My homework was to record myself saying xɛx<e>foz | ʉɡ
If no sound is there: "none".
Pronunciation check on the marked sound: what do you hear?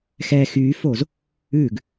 y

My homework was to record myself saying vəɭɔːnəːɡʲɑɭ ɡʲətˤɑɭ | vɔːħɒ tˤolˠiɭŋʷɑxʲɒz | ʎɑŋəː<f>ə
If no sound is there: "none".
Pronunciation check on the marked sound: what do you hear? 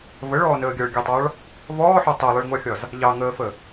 f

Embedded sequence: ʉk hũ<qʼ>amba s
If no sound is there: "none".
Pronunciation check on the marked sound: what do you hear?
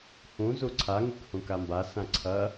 k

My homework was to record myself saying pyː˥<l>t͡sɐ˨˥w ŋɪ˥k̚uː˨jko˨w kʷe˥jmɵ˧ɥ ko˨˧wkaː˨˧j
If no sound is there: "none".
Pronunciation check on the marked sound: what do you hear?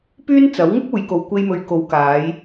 n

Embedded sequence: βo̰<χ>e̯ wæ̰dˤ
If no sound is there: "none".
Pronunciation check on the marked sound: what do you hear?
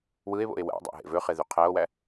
none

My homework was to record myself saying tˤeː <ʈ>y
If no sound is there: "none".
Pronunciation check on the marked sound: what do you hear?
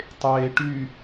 ʈ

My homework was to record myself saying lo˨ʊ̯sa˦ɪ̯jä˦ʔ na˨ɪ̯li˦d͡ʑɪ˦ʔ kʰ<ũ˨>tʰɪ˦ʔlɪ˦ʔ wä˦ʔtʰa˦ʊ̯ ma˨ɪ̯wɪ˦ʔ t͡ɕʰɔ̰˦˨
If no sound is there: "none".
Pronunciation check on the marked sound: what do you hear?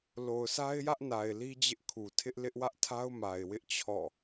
u˨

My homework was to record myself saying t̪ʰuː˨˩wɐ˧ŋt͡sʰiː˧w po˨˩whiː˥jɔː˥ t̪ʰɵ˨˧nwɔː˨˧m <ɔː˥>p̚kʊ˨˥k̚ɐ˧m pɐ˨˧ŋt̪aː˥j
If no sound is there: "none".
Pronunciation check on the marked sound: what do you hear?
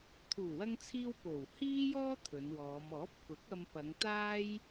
ɔː˨˥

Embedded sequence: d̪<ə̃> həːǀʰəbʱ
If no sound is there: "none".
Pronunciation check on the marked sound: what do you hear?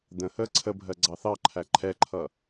ə̃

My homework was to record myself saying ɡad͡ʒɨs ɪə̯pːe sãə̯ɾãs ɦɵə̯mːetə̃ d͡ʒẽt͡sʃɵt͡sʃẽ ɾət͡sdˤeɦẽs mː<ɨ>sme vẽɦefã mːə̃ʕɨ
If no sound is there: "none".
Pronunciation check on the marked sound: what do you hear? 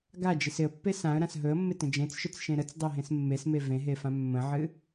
e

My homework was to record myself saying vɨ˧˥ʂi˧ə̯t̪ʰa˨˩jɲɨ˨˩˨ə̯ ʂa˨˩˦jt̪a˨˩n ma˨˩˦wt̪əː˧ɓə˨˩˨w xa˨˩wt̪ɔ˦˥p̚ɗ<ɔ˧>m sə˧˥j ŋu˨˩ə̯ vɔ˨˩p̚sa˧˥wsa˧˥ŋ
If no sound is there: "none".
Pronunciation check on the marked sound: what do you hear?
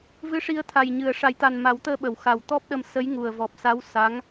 ə˧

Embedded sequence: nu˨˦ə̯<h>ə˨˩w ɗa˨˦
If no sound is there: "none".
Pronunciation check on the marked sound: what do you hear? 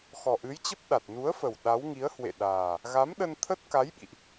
f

